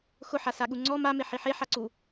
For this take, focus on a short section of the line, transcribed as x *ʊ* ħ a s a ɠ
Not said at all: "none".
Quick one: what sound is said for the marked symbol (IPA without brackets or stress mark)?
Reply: ʊ